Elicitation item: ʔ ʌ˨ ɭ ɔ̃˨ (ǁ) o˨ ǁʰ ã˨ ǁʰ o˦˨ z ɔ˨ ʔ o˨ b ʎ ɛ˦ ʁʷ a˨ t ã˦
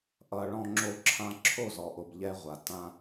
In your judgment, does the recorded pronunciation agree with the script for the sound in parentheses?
no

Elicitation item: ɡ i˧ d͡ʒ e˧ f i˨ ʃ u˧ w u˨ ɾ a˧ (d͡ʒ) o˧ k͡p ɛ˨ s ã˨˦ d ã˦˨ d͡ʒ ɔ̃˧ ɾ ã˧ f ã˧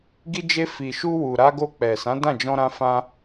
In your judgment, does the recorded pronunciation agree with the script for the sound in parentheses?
no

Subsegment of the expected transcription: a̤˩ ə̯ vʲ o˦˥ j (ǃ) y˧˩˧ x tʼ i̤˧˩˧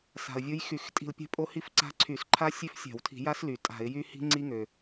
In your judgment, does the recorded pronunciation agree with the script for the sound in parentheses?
no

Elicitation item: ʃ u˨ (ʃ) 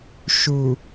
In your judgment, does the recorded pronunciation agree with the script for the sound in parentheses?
no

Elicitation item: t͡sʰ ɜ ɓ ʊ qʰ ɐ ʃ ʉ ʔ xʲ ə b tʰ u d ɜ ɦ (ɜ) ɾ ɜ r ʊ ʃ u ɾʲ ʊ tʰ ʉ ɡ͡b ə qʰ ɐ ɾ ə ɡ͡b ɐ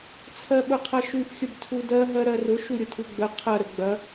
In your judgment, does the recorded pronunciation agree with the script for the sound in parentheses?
yes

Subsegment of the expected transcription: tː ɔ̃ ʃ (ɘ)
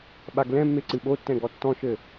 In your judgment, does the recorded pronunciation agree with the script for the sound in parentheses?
yes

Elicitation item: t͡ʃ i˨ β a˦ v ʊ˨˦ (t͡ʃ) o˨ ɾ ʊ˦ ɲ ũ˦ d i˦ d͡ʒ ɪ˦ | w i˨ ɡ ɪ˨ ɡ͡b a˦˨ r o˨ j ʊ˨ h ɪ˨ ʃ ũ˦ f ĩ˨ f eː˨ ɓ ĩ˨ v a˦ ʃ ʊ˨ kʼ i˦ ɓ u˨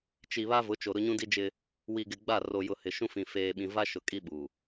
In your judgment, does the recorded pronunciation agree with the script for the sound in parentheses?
yes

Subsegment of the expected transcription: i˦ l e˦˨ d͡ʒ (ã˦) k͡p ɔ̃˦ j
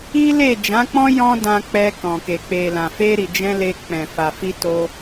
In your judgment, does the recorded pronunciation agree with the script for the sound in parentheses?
no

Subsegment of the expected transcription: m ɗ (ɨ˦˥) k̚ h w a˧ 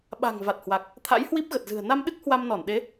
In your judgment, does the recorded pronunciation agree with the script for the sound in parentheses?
yes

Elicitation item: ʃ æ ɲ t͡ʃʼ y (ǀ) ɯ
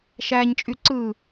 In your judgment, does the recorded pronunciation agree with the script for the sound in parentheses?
yes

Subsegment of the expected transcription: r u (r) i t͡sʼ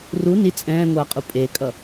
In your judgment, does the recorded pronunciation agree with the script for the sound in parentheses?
no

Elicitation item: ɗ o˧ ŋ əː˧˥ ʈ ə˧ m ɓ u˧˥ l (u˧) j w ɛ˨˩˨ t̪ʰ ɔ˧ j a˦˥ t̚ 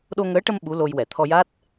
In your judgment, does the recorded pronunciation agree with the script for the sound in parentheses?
no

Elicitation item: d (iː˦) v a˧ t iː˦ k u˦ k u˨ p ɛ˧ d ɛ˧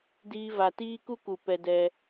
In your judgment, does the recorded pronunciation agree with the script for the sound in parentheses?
yes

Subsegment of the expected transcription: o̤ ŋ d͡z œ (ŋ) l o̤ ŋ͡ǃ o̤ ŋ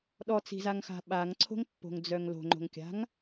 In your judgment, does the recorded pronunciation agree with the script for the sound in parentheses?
yes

